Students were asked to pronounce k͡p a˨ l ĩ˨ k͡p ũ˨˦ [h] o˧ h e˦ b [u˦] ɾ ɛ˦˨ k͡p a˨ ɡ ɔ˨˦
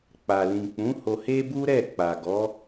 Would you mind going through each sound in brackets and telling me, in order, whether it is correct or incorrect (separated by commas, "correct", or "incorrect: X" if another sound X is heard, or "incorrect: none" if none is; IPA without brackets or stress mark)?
correct, correct